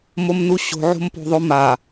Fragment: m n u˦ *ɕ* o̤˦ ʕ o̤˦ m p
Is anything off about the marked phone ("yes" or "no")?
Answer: no